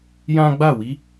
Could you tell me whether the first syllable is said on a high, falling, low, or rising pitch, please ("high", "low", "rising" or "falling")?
high